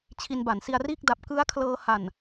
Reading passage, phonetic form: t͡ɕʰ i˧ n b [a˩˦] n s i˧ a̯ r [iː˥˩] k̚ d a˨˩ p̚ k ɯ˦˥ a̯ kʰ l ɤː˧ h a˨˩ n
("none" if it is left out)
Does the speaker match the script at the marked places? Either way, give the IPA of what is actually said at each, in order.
a˩˦, iː˥˩

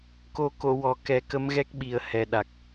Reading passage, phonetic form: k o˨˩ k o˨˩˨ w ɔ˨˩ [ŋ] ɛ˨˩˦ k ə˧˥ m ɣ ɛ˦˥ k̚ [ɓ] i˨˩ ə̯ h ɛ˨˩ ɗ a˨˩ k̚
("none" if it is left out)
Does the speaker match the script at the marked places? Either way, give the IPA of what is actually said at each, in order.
k, ɓ

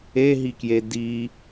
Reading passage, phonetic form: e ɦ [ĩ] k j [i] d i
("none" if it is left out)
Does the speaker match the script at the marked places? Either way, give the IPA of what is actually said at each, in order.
i, e

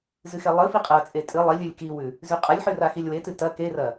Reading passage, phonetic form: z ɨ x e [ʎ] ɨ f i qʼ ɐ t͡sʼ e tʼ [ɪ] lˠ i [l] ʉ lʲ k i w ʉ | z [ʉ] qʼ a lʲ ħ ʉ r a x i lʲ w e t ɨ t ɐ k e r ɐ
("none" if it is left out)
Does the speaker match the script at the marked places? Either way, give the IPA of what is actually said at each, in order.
lˠ, ɨ, lʲ, ʉ

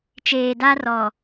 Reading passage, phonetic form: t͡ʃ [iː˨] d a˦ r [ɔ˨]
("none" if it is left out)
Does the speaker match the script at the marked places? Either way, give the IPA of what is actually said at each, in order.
eː˨, ɔ˨

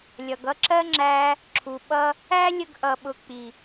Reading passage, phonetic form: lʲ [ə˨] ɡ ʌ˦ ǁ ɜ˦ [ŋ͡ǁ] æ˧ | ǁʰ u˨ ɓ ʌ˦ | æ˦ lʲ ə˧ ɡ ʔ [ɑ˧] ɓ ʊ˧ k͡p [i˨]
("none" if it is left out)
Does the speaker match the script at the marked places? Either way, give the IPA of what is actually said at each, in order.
ʌ˨, ŋ͡ǁ, ʌ˧, i˨

